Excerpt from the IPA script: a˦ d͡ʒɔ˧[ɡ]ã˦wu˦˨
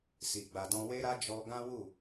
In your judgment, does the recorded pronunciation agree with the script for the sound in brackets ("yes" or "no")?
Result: yes